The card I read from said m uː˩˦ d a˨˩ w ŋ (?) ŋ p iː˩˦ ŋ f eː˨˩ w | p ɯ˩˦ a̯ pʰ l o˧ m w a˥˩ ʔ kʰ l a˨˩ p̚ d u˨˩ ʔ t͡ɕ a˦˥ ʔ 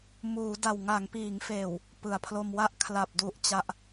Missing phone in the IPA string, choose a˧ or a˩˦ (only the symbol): a˩˦